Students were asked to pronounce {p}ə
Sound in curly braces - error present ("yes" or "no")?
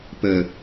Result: no